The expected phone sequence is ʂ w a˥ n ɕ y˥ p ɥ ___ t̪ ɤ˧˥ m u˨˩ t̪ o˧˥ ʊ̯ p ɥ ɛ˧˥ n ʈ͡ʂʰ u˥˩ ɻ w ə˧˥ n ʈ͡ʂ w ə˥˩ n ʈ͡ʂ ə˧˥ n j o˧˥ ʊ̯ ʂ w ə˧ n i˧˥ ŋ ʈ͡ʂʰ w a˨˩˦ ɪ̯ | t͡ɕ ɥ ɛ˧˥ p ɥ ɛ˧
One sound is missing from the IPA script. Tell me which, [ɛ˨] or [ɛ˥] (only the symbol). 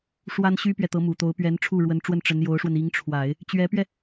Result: ɛ˨